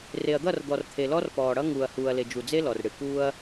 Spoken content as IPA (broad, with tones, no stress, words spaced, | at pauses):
re˨ɐ̯d̪ʌ˦˨rd̪ɔ˨rt̪ʰe˨ lɔ˦r pɔː˨ɽʌ˦ ŋuː˨ɐ̯huː˨ɐ̯le˨ d͡ʒu˨d͡ze˦ lɔ˨rɽɨ˨ kuː˦ɐ̯